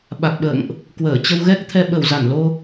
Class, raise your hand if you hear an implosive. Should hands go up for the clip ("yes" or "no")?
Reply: yes